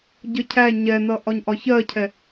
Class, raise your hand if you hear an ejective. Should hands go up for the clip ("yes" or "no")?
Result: no